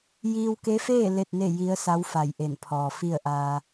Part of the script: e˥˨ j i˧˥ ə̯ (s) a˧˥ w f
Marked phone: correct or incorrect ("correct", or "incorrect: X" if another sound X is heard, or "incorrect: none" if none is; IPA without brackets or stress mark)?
correct